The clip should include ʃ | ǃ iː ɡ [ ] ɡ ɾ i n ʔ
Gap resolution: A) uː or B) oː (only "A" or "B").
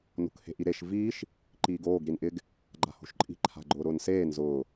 B